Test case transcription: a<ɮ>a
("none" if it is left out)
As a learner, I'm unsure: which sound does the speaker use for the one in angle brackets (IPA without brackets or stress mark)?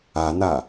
n̪